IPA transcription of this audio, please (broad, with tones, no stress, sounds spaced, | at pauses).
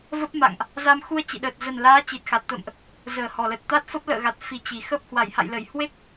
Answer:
v ə˦˥ p̚ m a̰˧˨ ŋ ʔ | z a˧ m x u˧ ə̯ t͡ɕ ḭ˧˨ ɗ əː˨˩ t̚ z ə˨˩ n l aː˨˦ t͡ɕ i˨˩ t̚ x a˨˩ t̚ t̪ ə̰ː˧˨ m ʔ | z əː˨˩ h ɔ˨˩ l ə˨˩ t̚ t̪ a˦˥ t̚ f ə˦˥ p̚ l ə̰ː˧˨ ɣ a˨˩ t̚ f i˨˩ t͡ɕ i˨˩ x ə˦˥ p̚ h w a˧˩ j h a̰˧˨ j l ə˧˩ j h w e˦˥ k̚